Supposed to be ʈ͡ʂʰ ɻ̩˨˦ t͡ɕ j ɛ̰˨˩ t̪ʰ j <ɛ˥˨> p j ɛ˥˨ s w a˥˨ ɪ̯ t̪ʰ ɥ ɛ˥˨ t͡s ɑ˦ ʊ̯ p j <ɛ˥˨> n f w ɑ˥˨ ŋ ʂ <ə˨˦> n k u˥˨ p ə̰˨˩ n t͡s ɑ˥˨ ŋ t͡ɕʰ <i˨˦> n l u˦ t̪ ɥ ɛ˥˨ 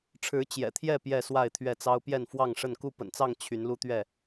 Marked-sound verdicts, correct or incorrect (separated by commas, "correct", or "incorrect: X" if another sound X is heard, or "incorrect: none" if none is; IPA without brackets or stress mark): correct, correct, incorrect: ə˥˨, incorrect: y˨˦